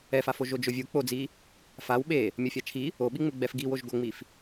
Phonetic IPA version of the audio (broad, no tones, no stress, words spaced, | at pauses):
ɛfafo ʒod͡ʒʊvʲu k͡pod͡zi | faw ɓe | mʲofʲat͡ʃʰi | oɓiŋ͡mɪ ɡ͡bɛfɡiwoʒ ɡoŋ͡mif